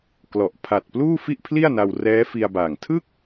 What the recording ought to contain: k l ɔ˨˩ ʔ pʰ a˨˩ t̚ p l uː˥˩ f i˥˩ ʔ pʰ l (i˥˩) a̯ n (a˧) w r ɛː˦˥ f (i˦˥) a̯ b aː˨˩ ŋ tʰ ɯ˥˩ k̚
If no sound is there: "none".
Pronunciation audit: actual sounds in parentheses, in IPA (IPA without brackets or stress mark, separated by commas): i˥˩, a˧, i˧